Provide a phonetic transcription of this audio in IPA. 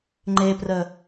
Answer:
ŋ͡ǃ e p r ə

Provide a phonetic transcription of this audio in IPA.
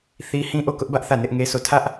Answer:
θ i˦ h ĩ˦ ʔ o˦˨ k ʊ˦ ʔ b ä˦ ʔ θ ä˦˨ n ɪ˦ ʔ ŋ e˦ s o˦˨ tʰ ä˦ ʔ

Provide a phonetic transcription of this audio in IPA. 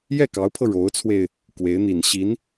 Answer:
j ɛ˥˩ k ɑ˧˥ ʊ̯ pʰ ɤ˧ ɻ o˧˥ ʊ̯ t͡sʰ w e˧ ɪ̯ | k w e˧˥ ɪ̯ n̪ i˨˩ n ɕ i˧˥ n

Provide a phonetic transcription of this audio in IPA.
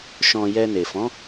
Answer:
ʃ ɔ̃˨ j ɛ˧ n e˨ f ɔ̃˨˦

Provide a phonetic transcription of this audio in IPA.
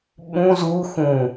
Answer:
ɓ ũ z u x ũ

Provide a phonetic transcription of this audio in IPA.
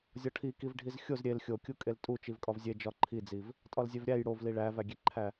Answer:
zʲ ɒ ʈʰ i k i v ɖʱ i z xʲ o z ɾʲ e l xʲ o kʲ u kʼ e l tʼ u t͡ʃ i v kʼ ɒ v zʲ e d͡ʒ ɒ ǃʰ i d͡z i v | tʼ ɒ l zʲ e v ɾʲ æ j ɽ o v l i ɭ æ v æ ɡʲ e ǃʰ æ

